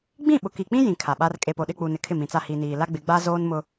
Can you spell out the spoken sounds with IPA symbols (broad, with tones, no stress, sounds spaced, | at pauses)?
ɡ͡b ĩ˦˨ ɓ ʊ˨ k i˨ k͡p ĩ˦ j ĩ˨ kʰ a˨ ɓ a˦ r kʼ e˨ p o˨ ɗ ɪ˦˨ k͡p u˨ n ɪ˨ kʰ ɪ˦˨ m ĩ˨ t͡s a˦˨ h i˨ n iː˨ l a˦ ɡ͡b ɪ˨˦ ɡ͡b a˦ z oː˦ n m ʊ˦